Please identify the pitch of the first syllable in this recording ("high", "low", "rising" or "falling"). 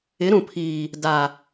rising